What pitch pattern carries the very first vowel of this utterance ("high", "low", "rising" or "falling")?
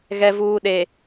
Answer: low